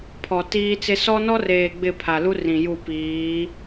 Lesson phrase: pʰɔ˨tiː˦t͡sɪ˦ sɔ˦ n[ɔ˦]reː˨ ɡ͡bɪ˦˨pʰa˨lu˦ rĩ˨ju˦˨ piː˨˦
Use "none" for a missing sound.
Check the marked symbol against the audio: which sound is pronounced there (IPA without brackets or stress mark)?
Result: ɔ˦